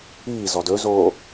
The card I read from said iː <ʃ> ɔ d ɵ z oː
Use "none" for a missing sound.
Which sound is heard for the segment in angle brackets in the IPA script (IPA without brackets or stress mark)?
z